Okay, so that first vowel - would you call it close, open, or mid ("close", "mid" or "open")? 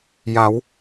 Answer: open